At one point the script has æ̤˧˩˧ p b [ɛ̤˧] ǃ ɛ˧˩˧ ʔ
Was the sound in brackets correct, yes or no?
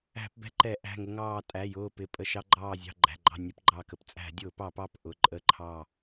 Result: yes